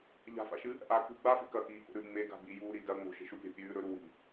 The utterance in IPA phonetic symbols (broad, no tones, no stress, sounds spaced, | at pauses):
ʎ a̤ f a̰ ʃ ɨ | ʔ a k ṳ ɡ͡b a f e̤ k ɐ k iː k o̰ ɾ ʉ ŋ͡m e ɡ a̤ b i j uː ɾ i d ɐ ŋ͡m o̤ ʃ e̤ ʃ u pʲ a̤ pʲ ʉː ɾ ɵ ɾ u w i̤